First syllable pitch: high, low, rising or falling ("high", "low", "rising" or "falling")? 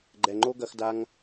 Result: low